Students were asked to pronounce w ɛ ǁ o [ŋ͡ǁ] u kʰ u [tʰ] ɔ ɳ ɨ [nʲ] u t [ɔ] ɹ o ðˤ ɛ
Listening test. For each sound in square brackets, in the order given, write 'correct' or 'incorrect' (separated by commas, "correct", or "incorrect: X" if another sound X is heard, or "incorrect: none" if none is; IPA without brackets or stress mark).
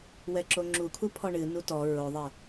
correct, incorrect: pʰ, incorrect: n, correct